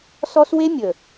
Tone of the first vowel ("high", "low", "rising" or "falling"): high